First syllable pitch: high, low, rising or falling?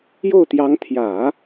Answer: falling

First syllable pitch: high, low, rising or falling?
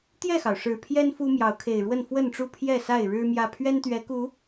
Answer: falling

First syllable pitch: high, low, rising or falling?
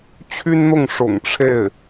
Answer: high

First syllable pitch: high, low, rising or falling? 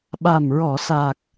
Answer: low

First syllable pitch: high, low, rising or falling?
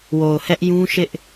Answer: low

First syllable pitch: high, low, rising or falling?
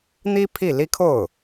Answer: high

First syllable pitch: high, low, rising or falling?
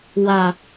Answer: low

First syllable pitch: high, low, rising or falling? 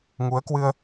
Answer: rising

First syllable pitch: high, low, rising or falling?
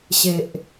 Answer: low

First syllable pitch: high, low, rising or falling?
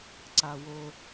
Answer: low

